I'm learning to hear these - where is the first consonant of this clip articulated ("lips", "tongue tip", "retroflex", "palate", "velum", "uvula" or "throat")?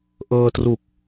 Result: throat